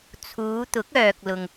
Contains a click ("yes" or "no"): no